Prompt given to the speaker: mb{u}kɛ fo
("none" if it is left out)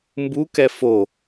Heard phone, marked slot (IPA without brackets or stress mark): u